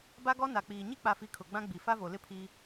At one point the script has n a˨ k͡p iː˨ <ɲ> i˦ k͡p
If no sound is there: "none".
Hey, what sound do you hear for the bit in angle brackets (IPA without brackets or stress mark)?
ɲ